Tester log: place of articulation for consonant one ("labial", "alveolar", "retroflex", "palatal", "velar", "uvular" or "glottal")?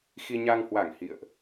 velar